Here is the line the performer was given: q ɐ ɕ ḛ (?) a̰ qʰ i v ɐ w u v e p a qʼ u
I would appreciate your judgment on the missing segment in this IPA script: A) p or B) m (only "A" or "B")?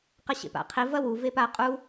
A